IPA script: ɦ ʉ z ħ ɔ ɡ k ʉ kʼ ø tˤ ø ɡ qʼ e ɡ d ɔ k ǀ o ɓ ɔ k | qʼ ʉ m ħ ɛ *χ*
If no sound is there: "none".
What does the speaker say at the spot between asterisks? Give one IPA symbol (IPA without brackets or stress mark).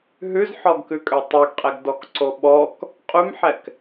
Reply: k